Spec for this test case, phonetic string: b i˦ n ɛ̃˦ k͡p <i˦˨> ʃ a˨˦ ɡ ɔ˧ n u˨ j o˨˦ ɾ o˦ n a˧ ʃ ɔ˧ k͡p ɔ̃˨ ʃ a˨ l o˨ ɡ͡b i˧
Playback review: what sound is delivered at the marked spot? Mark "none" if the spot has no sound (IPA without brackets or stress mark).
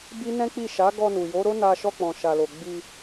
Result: i˦˨